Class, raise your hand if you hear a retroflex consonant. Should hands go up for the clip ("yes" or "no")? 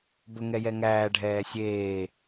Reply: yes